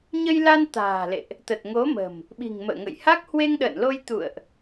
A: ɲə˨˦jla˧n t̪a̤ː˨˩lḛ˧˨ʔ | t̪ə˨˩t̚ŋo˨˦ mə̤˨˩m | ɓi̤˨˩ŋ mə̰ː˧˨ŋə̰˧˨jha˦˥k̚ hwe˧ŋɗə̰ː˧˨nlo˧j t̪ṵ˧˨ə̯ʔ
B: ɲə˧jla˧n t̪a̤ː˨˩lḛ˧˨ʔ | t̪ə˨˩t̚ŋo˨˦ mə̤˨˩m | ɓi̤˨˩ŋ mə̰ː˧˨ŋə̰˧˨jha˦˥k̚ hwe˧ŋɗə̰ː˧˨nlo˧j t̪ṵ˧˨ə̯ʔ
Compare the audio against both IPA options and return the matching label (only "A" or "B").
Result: B